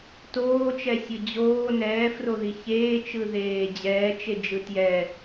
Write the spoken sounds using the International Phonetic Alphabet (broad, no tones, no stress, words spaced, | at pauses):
toːt͡ʃɛsʲɯ d͡ʑoː nɛːfroði çeːt͡ʃɯðeː d͡ʑɛːt͡ʃed͡ʒɯ tjɛ